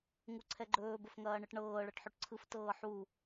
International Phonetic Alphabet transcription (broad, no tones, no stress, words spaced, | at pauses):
ŋuǀʰɛɡ͡ǃɵː bəfŋɐːɳɯʈɳɤː ɭɤʈħɵʈǀʰɯf tɤːħu